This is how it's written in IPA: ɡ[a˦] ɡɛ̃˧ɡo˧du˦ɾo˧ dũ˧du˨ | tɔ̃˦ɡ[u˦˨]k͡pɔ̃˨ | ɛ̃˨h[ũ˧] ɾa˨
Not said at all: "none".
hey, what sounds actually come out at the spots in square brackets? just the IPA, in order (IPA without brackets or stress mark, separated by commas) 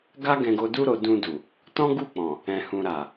a˦, u˦˨, ũ˨